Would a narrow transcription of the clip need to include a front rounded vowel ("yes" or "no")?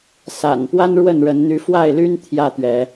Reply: yes